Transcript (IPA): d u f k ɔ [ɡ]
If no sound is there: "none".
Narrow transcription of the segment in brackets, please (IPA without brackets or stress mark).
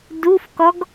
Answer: ɡ